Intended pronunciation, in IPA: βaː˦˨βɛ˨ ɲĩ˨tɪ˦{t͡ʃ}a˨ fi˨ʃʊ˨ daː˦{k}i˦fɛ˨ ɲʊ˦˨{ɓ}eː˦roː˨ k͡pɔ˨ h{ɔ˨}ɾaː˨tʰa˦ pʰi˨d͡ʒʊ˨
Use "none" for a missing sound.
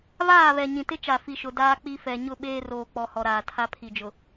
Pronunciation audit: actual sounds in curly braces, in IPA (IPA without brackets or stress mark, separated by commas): t͡ʃ, k͡p, ɓ, ɔ˨